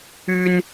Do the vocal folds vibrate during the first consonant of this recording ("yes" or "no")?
yes